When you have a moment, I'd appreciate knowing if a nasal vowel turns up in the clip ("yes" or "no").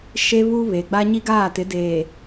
no